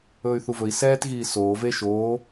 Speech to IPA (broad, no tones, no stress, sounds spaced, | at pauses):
ɵː y̯ θ u v ɵ i̯ s ɛː t ɣ iː s oː v e ʃ oː